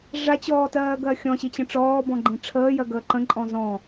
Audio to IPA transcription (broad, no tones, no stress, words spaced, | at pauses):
ʐat͡ɕɔːtɜːɡɜ xʲɔ̃ɕit͡ɕə̃ ʈ͡ʂɔːbɔ̃ɡ͡ǃĩ ʈ͡ʂʰəːjɜɡəː ǃə̃ǃʼɔ̃ zɔ̃